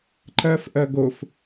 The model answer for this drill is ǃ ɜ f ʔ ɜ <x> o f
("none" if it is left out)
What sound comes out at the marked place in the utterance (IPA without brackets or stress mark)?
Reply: ɡ